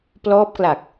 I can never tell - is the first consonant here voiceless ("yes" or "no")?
yes